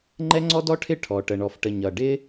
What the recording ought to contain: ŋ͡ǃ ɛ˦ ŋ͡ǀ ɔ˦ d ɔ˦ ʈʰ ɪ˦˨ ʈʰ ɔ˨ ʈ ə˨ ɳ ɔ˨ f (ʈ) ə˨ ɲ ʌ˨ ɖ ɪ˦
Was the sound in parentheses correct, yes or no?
yes